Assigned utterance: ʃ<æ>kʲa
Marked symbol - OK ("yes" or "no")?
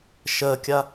no